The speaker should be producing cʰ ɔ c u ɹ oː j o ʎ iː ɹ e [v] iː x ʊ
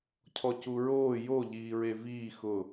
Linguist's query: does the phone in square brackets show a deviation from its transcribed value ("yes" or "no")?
no